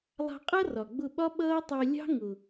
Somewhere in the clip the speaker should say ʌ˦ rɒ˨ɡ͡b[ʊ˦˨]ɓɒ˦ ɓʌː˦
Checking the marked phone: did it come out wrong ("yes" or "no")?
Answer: no